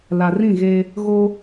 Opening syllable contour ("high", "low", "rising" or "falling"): low